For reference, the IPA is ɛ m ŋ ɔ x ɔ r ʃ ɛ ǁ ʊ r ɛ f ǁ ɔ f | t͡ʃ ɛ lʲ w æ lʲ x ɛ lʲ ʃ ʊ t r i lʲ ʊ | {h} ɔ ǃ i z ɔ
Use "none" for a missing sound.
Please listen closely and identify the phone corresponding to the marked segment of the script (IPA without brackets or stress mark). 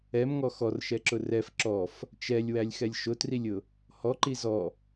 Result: h